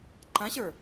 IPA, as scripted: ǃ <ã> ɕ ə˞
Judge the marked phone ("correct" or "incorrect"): correct